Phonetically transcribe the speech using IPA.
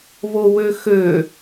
βowøxø

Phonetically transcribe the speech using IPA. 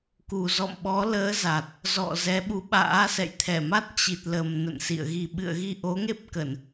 ku˨˩zɔ̰˧˨mɓɔ˨˦ləː˨˦ za˨˩t̚ | zɔ̰˧˨zɛ˨˦ɓu˨˦ ɓa̰ː˧˥ sɛ̰˧˨jt̪ʰɛ˧˩ma˦˥t̚ t͡ɕi˨˩t̚lə˨˩m nə̰˧˨nsḭ˧˨ə̯ɣi˧ ɓɨ̰˧˨ə̯ɣi˧ʔo˨˦ ŋe˦˥p̚kə˧˩˨n

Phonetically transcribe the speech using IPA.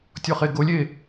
tʲɔχeɡolʲe

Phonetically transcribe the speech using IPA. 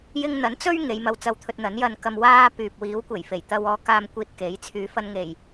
jɪ˧ŋn̪ɐ˨˥n t͡sɵ˥ɥ ŋe˨˧jmɐ˧w t͡sɐ˧wt̪ʰɵ˧t̚n̪ɐ˨˥n jɐ˧nkɐ˧m waː˥pyː˨p̚ wiː˨˥wkʷe˨˩jfe˨˩j t̪ɐ˧w ɔː˧kaː˧m kʷiː˧t̚ke˨˥j t͡sʰyː˨˥fɐ˧nŋe˨˩j

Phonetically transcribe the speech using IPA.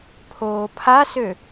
pʰoːpʰasø

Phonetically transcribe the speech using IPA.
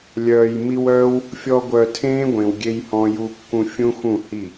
lʲœː˨j mi˧wœː˦w | fʲɔ˧ ɡʷœ˨ tʰẽː˦ɡʷẽ˨wɡʲe˧jhɔ̃˧ ju˧kːũ˧fʲũ˦xũ˦˨ hi˦˨

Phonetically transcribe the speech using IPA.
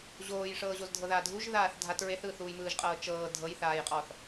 ʑoːjʂɤːʑoz dʱɤðaːdʱuʒ ðaːθdʱat ɹeθɯːθuːjmɯːʒ qʼɤːt͡ʃɤː dʱɤjθaːjqʼɔθ

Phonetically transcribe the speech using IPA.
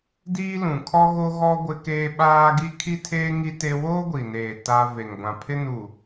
diː˦lũ˨ kʰɔ˦ ɣo˦ ɣɔ˦ ɡʷɪ˦keː˦ ɓaː˦ ɡi˦kʰi˦tʰeː˦ ŋi˦te˦ woː˦ɡʷi˨neː˨ ta˦ ve˨ŋɡʷã˨pʰɪ˦ nu˨

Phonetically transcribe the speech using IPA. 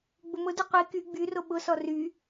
ɡ͡bʊmʊdy qʷi ky ɡ͡byro ɓʊsɔ ry

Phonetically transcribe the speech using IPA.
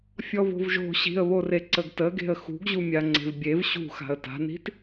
fʲɔvo̤vʒo̤ ɕi̤ə̯βoreǀəɡ təɡe̤ə̯ xṳɡʑumʲa ŋ͡ǀe̤vbʲev ɕṳ xa̤ə̯ta̤ni̤t

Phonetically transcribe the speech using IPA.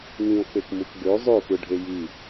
ŋĩo̯k͡pekmuk ɡø zˤøfɯɖʱe ji

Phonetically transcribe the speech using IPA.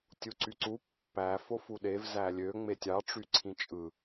tʲuǀyǀu pːæ fofuɗev zælʲø ŋ͡metʲɑ ʈ͡ʂyǀʰĩt͡ʃʼɯ

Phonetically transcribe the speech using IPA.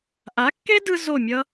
ʔa˨˦kːe˦dɯ˧ zo˦˨mʲʌ˦

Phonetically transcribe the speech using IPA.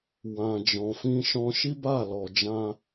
wã˨ d͡ʒɔ̃˨fĩ˧ʃɔ̃˧ ʃi˦ba˦˨lɔ˨d͡ʒã˧

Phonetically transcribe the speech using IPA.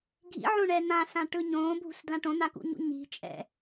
ɡʱḭʕõɳɛ n̪ãsãʈɯ ɲõːbʱṳsdlã ʈõn̪akṵɲṵ ɲi̤t͡ʃʼɛ̰

